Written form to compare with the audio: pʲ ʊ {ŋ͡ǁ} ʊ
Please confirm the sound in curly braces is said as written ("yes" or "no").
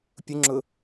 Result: yes